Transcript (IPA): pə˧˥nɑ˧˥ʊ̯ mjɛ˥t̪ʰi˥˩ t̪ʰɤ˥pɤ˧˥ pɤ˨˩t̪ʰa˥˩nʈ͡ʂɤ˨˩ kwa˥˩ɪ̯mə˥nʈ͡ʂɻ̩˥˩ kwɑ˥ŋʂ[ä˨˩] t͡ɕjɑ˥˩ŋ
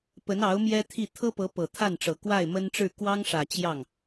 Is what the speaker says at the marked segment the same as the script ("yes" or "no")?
yes